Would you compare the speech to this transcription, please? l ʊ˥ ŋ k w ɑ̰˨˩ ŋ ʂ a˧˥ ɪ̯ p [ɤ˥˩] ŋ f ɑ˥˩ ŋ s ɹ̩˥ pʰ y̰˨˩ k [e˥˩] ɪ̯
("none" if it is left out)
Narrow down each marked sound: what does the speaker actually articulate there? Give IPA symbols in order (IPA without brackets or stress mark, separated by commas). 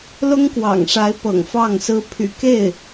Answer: ɤ̰˨˩, e˥˩